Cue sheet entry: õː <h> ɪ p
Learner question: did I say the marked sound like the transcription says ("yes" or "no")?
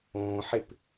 no